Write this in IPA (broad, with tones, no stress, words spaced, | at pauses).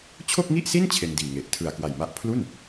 t͡ɕʰo˥˩k̚ŋi˥˩ʔsi˥˩n t͡ɕʰe˧ndiː˨˩ŋe˨˩ʔ tʰɯ˨˩a̯kwa˨˩jma˥˩ʔ pʰlu˥˩n